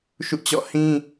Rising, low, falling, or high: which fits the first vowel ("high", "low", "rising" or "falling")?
falling